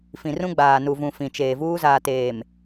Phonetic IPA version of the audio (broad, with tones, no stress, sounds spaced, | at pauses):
f ĩ˨ r ũ˦ ɡ͡b aː˨ n u˨ v ũ˨ f ĩ˨ t͡ʃ eː˨ v uː˦ z aː˨ t eː˨ m